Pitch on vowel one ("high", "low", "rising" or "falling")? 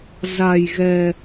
low